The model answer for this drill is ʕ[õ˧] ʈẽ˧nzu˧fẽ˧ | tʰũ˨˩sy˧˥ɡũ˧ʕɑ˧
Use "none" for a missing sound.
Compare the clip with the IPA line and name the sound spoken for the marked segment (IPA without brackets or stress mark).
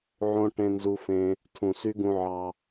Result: õ˧